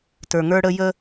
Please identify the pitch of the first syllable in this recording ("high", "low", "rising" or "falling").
low